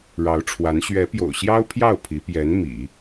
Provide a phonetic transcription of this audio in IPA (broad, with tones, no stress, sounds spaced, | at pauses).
ɻ ɑ˧˥ ʊ̯ ʈ͡ʂʰ w a˧˥ n ɕ ɥ ɛ˧˥ p j o̰˨˩ ʊ̯ ɕ j ɑ˥ ʊ̯ pʰ j ɑ˥˩ ʊ̯ pʰ i˧˥ p j ɛ˧˥ n m ḭ˨˩˦